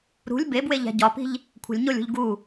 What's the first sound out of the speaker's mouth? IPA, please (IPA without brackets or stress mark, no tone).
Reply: ɾ